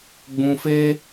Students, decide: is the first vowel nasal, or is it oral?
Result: nasal